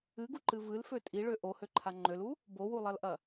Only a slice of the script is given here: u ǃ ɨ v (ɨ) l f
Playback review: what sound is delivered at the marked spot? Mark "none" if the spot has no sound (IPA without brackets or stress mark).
ɨ